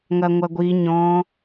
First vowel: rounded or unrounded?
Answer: unrounded